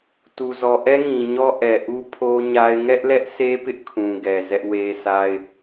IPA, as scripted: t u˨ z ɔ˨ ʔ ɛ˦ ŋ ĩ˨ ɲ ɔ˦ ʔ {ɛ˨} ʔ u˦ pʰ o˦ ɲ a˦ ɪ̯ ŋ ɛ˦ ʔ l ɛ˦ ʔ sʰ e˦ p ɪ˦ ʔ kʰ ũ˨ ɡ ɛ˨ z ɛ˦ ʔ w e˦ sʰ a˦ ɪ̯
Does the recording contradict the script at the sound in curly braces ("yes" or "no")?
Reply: no